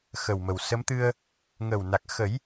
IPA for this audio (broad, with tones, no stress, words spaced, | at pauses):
xə˨˩wmə˨˩wsə˧˥mt̪ɨ˧ə̯ | ŋə˨˩wna˨˩k̚xə˨˩˦j